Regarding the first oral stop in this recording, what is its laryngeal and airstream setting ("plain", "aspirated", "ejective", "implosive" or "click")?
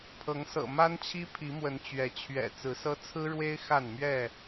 aspirated